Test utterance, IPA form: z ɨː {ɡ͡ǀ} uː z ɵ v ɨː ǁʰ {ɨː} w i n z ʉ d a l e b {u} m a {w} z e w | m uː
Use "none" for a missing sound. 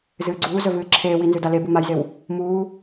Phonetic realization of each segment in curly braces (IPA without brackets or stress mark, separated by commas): ɡ͡ǀ, eː, u, j